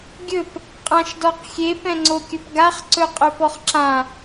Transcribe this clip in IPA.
ɡʲ ɵ p | qʼ ã ʃ d ɔ q xʲ e p ɛ̃ ŋ͡ǀ o kʲ ɵ p ɡ a χ ǀ ɵ qʼ ɵ p ɔ χ ǁ ã

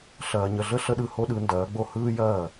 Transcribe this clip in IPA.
ɬ ɐː˧ ɲ ə˧ ɮ ə˥ ɬ ə˥ ɗ ɯ˧ h o˥ ɗ ɯ˩˥ n d ɐː˩˥ ɡ͡b o˥˩ h ɯː˥ j ɐː˥˩

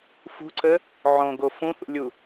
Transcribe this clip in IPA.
f ṳ ǀ ə | ʕ õ ɡ o f ũ θ ṵ lʲ u

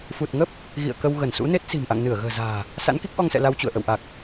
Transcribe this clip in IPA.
f u˨˩ t̚ ŋ ə˦˥ p̚ | ɣ ḭ˧˨ ə̯ k ə˧ w ɣ ə˧˩ n s ṵ˧˥ n e˦˥ t̚ s i̤˨˩ m ʔ a̰˧˨ ŋ n ɨ˧˩ ə̯ ɣ ə̤ː˨˩ z a̤ː˨˩ | s a̰˧˥ n k i˦˥ k̚ ʔ ɔ˧ ŋ s ɛ̰˧˨ l a˧ w t͡ɕ ṵ˧˨ ə̯ ʔ ə̰˧˨ w ʔ a˨˩ k̚

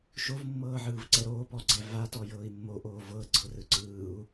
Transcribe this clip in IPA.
ʃ o v mː ɤː ʕ ɯː v ǀ ɛ ɾ oː p ɔ ɡ͡ǀ ɛ v a t ɔ j ɤː i̯ mː o ʔ oː v ɤ ɡ͡ǀ ɤ r ɯ ǀ ɯː u̯

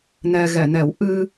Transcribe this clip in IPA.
n ɛ˧ ɣ ɛ˨˩˨ n ɛ˨˩˦ w ʔ ɨ˧

